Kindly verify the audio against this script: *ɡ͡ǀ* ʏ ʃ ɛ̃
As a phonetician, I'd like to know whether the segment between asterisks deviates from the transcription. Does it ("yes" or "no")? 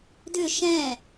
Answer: yes